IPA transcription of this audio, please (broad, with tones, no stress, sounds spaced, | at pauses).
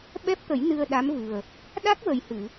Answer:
ɓ ɛ˦˥ p̚ t̪ ə˨˩˦ j n ɨ˧ ə̯ ɗ a˧˥ m v ɨ˨˩ ə̯ | ɗ a˦˥ k̚ w ə˨˩ j h ɨ˨˩˨